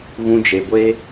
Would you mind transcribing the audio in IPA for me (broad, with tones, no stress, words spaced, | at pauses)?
ɣũ˧d͡ʒe˨ɡʷe˦